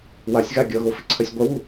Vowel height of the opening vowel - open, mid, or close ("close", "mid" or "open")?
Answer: open